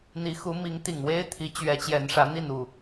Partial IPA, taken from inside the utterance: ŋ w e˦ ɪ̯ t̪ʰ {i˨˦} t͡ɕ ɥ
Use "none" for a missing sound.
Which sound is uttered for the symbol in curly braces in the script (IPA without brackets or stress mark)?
i˨˦